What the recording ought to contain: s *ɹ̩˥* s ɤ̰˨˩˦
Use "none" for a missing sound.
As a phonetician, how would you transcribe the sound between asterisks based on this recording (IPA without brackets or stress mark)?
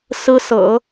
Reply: ɹ̩˥